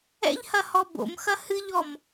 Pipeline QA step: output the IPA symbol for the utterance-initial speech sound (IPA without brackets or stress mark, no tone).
ɛ̰